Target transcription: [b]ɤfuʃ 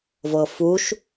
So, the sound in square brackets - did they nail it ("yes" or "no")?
no